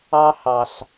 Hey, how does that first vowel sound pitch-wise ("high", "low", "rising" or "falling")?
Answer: high